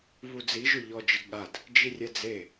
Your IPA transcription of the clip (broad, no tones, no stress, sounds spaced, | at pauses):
β u d͡z i ʒ ʊ ʎ ɔ d͡ʒ ɪ ɡ ɠ a d | d͡ʒ i rʲ ɛ d͡z e